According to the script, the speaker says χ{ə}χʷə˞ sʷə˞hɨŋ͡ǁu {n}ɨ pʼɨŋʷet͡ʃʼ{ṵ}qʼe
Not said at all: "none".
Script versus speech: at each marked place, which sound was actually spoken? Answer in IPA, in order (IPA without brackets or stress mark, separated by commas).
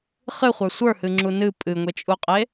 ɨ, n, u